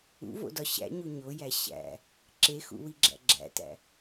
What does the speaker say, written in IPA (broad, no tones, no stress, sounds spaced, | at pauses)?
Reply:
ṵ v o̰ d ɒ ɕ æ̰ ɲ u ɲ o j æ ɕ æ̰ | ǁ e x ṵ w i ɡ͡ǁ æ̰ ɡ͡ǁ æ̰ t æ̰